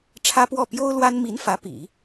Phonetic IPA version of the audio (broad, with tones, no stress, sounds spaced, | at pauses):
ʈ͡ʂʰ ä˥ p w ɔ˥˩ p j o˥ ʊ̯ l w a˥ n m i˧˥ n f ä˧˥ p ḭ˨˩˦